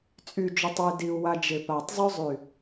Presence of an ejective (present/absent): present